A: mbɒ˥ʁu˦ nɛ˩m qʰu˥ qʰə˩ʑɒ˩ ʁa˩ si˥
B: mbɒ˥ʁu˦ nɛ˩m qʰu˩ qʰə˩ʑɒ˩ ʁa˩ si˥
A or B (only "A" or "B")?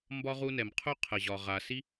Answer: A